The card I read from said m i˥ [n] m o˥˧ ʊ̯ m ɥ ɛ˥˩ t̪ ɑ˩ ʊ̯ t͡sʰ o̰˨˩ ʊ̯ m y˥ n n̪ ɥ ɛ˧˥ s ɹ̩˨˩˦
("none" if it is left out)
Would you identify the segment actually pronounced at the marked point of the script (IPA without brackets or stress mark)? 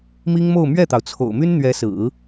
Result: ŋ